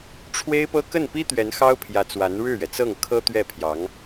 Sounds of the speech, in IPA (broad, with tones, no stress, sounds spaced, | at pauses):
ʈ͡ʂʰ w e˥ ɪ̯ p ɤ˥ k ə˥˩ n p i˥ t̪ ɥ ɛ˧˥ n x ɑ˥ ʊ̯ pʰ j ä˧˥ t͡s w a˧˥ n ɻ ɻ̩˥˩ ɥ ɛ˩ t͡s ɤ˥˩ ŋ kʰ ɤ˥ t̪ ɥ ɛ˥˩ pʰ j ɑ˧˥ ŋ